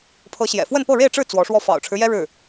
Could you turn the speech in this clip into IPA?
pʰɤ˧˥ɕjɛ̰˨˩fwə˥˧n pɤ˥˧ɻe˥˧ɪ̯ʈ͡ʂɻ̩˥˩ t͡swɔ˧˥ʂwɔ˥˩ fɑ̰˨˩ʊ̯ʈ͡ʂʰɻ̩˦jɛ˥ ɻɻ̩˥˩

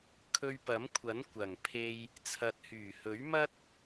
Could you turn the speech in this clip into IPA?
kʰɵ˧ɥpɐ˨˥mkʷʰɐ˨˥n kʷɐ˨˩ŋpʰe˧j | t͡sʰɐ˨t̚hyː˨˩hɵ˨˥ɥmɐ˥t̚

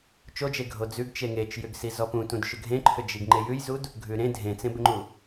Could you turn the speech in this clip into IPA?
t͡ʃod͡ʒe ɡʱod͡zʉɡ t͡ʃeŋet͡ʃ jʏɡsizɔpũ tũdʃʏɡʱẽǃʰʏ d͡ʒiɡŋ͡ǃejʉjzud | ɡʱʉɾẽ dʱẽt͡sẽbʏŋ͡ǃu

